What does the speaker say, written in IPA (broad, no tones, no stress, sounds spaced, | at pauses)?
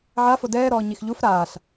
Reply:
ʕ a f o d ɛː ɾ ɔː ɲ i x ʎ u f ɾ aː ɬ